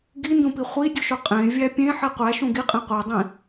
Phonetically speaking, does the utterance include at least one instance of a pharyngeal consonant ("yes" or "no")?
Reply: yes